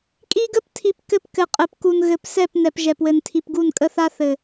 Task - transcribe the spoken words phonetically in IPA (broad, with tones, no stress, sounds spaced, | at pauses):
kʼ i˦ ɡ ə˦ p tʰ i˨ p k ɘ˦ p k ɘ˨ qʼ ɘ˨ p k u˨ n ɣ ɘ˨ p s ɛ˦˨ p n ɛ˨ p ʒ ɛ˨ p w ɘ˨ n tʰ i˨ p ɡ u˦˨ n kʼ ə˦ θ a˦ θ ɘ˨